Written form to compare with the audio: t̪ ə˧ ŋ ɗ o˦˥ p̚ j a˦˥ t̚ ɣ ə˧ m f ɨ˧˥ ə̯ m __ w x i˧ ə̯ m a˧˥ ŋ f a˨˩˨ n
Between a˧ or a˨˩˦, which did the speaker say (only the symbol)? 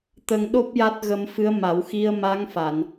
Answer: a˨˩˦